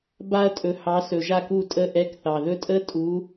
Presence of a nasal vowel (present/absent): absent